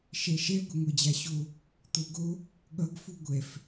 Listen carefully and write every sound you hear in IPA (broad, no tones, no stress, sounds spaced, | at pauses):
ʃ ɛ ʃ ɛ ɡʷ e ŋʷ ɛ d͡ʑ a ɕ o | t̪ o ɡ o | ɠ ʌ ɡ f u ɡʷ ɛ f